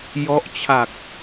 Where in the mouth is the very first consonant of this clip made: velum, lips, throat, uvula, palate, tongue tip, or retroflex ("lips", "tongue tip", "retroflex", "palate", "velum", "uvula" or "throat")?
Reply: palate